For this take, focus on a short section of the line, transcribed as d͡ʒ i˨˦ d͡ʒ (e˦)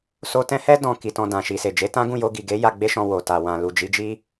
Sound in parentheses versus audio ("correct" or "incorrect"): incorrect